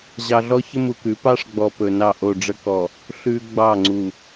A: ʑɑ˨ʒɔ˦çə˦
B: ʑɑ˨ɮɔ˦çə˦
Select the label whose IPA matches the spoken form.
B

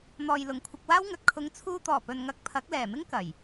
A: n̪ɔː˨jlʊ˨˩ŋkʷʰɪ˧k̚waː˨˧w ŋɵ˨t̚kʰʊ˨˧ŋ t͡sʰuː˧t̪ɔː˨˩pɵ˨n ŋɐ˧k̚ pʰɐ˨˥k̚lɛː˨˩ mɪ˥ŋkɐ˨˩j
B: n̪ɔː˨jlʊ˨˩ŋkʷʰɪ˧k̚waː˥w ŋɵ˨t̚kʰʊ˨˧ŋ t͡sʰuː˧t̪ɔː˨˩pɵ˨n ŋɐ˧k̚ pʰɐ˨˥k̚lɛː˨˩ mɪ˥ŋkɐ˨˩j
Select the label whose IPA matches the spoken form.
B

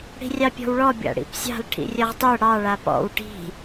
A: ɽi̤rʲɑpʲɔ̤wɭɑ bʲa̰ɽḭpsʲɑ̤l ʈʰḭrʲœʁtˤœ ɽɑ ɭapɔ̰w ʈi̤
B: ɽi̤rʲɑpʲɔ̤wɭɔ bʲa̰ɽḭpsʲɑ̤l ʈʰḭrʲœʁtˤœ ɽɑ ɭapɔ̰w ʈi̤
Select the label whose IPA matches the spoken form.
B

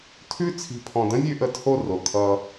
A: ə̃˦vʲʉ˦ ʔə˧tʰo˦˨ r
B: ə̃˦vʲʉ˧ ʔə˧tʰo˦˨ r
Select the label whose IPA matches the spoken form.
B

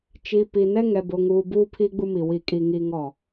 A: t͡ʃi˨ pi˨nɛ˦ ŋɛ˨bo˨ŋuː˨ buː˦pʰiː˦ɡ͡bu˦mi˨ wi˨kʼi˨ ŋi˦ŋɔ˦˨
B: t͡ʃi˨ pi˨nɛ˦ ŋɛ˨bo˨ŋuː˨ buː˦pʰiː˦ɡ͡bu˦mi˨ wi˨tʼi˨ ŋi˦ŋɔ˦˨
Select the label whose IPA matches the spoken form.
A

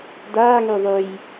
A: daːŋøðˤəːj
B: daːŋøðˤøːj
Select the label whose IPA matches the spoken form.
B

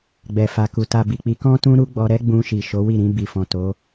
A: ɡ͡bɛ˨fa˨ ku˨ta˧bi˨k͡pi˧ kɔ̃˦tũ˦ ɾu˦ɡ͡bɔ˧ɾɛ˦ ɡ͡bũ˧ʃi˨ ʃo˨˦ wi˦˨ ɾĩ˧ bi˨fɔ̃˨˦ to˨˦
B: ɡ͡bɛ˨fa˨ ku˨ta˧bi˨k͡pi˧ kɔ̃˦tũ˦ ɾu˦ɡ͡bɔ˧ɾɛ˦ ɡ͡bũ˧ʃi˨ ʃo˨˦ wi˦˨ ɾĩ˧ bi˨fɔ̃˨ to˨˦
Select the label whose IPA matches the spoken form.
B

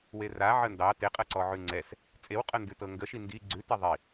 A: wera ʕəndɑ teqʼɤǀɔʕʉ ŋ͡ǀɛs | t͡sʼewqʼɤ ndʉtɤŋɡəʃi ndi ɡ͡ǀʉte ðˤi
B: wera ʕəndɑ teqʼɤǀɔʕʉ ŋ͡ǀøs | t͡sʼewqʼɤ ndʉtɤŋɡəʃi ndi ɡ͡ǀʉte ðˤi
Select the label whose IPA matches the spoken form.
A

